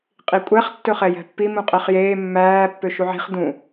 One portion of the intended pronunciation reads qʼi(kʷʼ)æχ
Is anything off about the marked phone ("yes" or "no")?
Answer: no